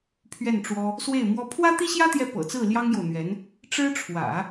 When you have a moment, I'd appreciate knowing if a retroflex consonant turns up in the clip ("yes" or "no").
yes